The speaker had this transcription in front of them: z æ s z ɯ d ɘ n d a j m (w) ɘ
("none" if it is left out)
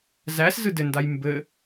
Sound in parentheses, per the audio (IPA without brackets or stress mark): b